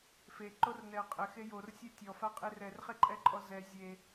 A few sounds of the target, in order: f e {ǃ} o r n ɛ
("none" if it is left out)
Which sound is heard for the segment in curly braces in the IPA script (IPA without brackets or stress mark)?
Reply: ǃ